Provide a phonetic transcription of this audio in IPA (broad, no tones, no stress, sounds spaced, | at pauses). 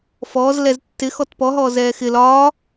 f ɔː z l ɛ z tː ɪ x ɔ t p ɔ ɦ ɔː z ɛː x ɪ l ɒː